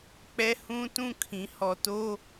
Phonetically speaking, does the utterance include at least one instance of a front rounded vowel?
no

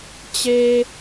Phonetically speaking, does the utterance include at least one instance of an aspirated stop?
no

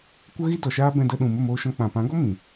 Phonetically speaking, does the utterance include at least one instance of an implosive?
yes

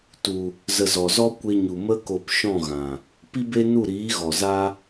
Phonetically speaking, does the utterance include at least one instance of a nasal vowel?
yes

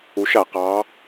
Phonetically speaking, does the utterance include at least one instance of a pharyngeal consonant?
no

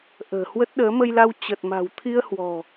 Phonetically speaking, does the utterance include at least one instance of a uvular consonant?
no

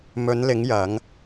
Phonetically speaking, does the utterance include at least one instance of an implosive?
no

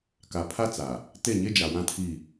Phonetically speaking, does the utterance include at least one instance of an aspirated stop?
yes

